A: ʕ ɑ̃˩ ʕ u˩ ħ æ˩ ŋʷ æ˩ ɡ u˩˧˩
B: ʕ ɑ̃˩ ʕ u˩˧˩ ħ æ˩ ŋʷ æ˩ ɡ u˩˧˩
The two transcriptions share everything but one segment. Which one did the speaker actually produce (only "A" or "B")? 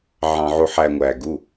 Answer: A